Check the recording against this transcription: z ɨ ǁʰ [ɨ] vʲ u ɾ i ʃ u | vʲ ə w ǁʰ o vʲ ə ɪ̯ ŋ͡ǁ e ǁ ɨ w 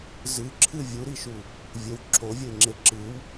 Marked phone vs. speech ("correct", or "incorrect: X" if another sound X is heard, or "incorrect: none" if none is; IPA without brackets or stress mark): correct